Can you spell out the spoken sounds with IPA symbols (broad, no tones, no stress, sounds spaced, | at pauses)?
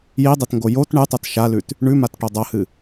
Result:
j i dˤ e t ŋ ɡ o j o t ɳ ɨ tˤ ɐ t ʃ a l ʉ t | ɳ ʉ m a t ʈ o dˤ ɐ h ɨ